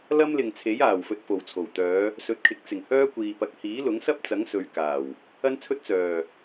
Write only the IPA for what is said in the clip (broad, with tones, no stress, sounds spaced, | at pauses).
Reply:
l ɐ˥ m l ɪ˨ ŋ t͡sʰ e˨˥ j aː˨˩ w f ɵ˨ t̚ f o˨˩ w t͡sʰ o˨˩ w t̪ œː˨˧ | s ɵ˨˥ t̚ kʰ ɪ˨˥ k̚ t͡s ɪ˨˩ ŋ h œː˥ kʷ iː˨ p ɐ˨˥ k̚ h iː˨˥ l ʊ˨˥ ŋ s ɐ˥ p̚ t͡s ɐ˨˥ ŋ s ɵ˨˧ ɥ k aː˨˩ w | ɐ˥ n t͡sʰ ɵ˥ t̚ t͡s œː˨˩